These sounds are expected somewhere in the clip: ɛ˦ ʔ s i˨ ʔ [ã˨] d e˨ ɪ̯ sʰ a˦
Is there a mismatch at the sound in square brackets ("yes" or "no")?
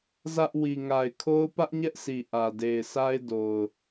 yes